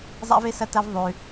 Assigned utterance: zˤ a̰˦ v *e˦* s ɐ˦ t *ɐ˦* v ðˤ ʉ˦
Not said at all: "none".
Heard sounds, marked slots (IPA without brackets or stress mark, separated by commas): e˦, ɐ˦